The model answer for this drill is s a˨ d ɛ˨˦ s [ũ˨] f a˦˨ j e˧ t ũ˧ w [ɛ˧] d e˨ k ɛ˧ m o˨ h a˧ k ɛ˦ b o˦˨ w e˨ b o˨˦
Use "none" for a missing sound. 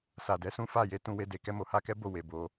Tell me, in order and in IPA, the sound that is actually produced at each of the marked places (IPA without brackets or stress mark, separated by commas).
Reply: ũ˦, e˧